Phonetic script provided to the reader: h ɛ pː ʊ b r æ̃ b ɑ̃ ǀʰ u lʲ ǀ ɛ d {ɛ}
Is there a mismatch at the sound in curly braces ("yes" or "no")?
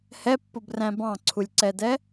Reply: no